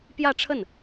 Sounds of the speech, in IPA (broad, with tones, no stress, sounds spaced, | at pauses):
p j ä˥˧ ʈ͡ʂʰ ə˥˩ n